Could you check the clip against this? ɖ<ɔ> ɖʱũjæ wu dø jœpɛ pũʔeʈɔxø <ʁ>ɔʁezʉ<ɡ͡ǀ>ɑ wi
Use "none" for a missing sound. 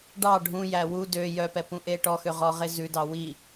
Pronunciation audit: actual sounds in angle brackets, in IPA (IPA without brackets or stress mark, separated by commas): ɑ, ʁ, d